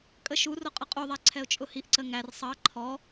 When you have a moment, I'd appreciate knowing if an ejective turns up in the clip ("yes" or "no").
yes